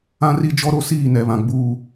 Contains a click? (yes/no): no